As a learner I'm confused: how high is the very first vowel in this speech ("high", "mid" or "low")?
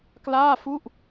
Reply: low